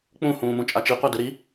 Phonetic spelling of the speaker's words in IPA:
k͡p ũ h ũː m ũ t͡ʃʼ a t͡ʃ i qʷ a d ɯ ɾ i

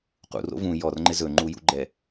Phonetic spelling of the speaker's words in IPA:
q ṵ r o̰ v ũ j ɔ r ŋ͡ǃ ɪ z ɵ ŋ͡ǃ u j ṵ ɡ͡ǃ ɛ

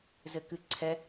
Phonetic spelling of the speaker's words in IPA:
z ɘ k ɨ ǀʰ ɛ

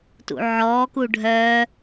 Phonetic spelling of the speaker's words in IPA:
t ṵ ʕ ɔː k u ɖʱ œː

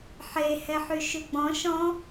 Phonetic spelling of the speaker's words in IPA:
ħ e h ɛ ħ y ʃ ʉ ɡ͡b ɔ̃ ʃ ɔ̃

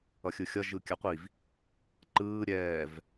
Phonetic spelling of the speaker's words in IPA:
ʌ xʲ ɯ xʲ ʌ ʒ ɯ kʲ a qʷ i v | ǃ ɯː ɾʲ ɛː v

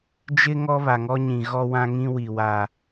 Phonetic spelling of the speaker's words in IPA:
d͡ʒ ɪ˦ ŋ ɔ˦ β a˨ ŋ ɔ˦ ɲ ĩ˨ ɣ ɔ˦ w ã˦ ŋ ĩ˦ w i˨ w a˦

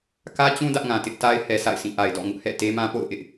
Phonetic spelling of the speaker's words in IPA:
k ä˦ t͡ɕ ũ˦ d ä˦ ʔ ŋ ã˨ t ɪ˦ ʔ t a˦ ɪ̯ h ɛ˨ sʰ a̰˦˨ ɪ̯ sʰ ĩ˦˨ ʔ a˨ ɪ̯ d ɔ̰˦˨ ŋ ʊ˦ ʔ h ɛ̰˦˨ t e˦ m ã˦ p o̰˦˨ ʊ̯ ʔ ɪ˦ ʔ

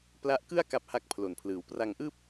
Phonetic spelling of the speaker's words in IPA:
p l a˦˥ ʔ k ɯ˥˩ a̯ k a˥˩ p̚ h a˥˩ k̚ pʰ l o˨˩ n pʰ l ɯː˨˩ w p r a˧ ŋ ʔ ɯː˥˩ p̚

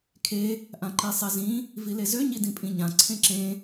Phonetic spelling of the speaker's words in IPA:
kʰ e | ʔ ã ǃ i sˤ e z ĩ | v i l e z ø ɲ i d ĩ pʼ ĩ ɲ ã ǀʰ ẽ ǁ ẽ

